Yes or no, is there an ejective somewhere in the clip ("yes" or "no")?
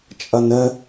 yes